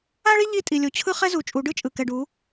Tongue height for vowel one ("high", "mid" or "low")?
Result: low